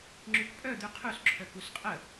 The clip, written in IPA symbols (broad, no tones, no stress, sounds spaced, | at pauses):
ŋ͡ǁ y k pʼ œ d̪ y qʰ u s ǁʰ œ k u s qʼ ə